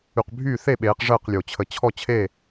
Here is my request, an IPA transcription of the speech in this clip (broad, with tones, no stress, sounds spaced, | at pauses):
y˨ q bʱ yː˥˨ θ e˥˨ ɓ eː˨˦ q ʐ əː˥˨ q lʲ o˨ t͡ɕʰ ə˨ t͡ɕʰ ɔ˥˨ t͡ɕʰ e˥˨